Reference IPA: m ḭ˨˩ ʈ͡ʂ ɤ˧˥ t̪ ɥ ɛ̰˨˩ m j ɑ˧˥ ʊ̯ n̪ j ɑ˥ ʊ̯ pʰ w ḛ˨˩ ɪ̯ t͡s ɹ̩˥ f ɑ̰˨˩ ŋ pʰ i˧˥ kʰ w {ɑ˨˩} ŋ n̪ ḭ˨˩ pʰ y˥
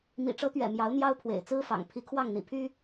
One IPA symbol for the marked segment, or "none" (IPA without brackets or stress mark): ɑ˥˩